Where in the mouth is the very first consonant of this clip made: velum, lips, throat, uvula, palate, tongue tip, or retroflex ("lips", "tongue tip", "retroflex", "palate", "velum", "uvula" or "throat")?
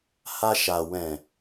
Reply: throat